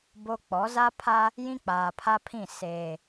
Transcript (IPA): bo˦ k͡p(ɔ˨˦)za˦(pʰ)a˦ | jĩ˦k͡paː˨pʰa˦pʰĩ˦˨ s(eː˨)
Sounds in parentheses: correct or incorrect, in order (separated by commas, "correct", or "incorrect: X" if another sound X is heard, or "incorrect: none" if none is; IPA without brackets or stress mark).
correct, correct, correct